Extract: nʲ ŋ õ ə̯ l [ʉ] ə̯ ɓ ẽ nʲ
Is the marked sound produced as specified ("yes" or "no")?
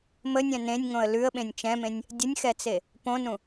yes